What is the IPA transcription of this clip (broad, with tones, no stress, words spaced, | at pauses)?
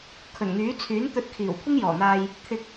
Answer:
kʰɵ˨˩nŋyː˨˥ t͡sʰyː˨˥nt̪ɵ˧t̚kʰiː˨˩w kʷʰɪ˥ŋjɔː˨˩n̪aː˧j | t̪ʰɪ˧k̚